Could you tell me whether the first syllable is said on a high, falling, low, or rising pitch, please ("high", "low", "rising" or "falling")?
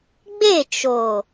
falling